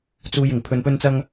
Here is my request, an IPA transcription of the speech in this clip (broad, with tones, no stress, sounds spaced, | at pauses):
t͡s uː˨ j ɪ˨˩ ŋ pʰ ɵ˨ n p ɵ˧ n t͡s ɐ˧ ŋ